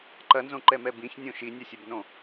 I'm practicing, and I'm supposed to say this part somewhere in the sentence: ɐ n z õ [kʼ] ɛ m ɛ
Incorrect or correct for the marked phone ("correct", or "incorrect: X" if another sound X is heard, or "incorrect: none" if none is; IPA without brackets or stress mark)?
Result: incorrect: ǃ